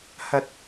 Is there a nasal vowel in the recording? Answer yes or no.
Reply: no